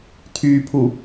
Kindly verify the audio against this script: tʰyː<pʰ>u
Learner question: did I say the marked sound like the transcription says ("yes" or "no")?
yes